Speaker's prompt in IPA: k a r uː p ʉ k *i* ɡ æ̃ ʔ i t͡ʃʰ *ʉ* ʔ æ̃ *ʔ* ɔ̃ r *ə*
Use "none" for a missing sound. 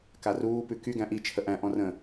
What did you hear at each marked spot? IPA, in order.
y, ə, ʔ, ə̃

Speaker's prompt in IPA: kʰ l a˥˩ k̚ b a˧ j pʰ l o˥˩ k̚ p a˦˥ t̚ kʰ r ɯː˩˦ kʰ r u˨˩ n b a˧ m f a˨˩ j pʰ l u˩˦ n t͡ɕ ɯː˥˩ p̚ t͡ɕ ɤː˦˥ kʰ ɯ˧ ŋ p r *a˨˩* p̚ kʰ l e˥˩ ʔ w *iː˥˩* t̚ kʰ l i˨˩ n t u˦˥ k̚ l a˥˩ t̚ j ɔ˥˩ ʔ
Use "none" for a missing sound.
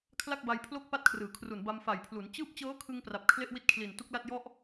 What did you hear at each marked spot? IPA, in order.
a˨˩, i˥˩

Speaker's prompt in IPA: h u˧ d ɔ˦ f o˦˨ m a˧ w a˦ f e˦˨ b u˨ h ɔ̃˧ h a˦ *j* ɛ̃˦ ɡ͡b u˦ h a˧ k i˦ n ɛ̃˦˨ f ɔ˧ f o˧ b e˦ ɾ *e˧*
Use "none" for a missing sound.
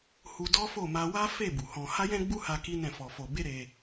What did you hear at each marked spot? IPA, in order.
j, e˧

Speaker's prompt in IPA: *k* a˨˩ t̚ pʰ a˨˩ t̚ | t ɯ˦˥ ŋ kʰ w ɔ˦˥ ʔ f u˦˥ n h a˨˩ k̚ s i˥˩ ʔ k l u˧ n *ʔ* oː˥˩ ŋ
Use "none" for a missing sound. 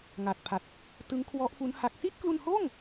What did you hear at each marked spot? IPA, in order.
ŋ, h

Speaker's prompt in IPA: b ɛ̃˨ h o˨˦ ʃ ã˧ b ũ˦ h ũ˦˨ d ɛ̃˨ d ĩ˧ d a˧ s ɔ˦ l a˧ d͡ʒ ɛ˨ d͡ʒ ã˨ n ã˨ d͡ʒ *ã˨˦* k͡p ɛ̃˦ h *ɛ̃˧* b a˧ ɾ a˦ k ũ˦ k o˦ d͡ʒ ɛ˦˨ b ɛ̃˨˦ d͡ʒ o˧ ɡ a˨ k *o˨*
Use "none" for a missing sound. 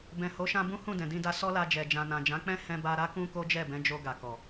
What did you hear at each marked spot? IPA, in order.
ã˨˦, ɛ̃˧, ɔ˨

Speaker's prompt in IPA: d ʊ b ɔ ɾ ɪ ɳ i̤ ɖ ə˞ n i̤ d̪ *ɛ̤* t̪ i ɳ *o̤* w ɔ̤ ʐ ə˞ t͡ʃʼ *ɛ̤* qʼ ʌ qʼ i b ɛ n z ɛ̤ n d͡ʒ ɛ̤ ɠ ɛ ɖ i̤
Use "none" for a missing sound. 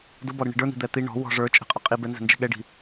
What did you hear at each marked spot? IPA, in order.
ɛ, ɔ̤, ɛ̤

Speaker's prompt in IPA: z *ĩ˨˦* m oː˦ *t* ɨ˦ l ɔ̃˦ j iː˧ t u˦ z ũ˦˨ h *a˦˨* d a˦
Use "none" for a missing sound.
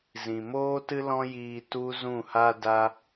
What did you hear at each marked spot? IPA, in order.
ĩ˨, t, a˦

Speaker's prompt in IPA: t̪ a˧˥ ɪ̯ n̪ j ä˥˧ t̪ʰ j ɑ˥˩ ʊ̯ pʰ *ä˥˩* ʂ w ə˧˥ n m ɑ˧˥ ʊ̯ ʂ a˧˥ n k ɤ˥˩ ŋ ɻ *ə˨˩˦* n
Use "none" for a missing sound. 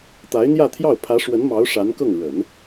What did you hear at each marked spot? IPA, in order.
ä˧˥, ə˨˩˦

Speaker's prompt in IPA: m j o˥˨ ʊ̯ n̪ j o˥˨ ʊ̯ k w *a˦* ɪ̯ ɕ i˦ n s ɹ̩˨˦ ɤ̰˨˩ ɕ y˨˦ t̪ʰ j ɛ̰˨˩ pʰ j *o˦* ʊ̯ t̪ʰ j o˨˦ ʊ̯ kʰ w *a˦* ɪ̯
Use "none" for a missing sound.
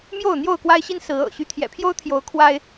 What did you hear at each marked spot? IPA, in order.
a˦, o˦, a˦

